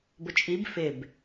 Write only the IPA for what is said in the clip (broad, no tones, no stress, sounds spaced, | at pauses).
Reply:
b ʊ t͡ʃʼ i b f ɪ b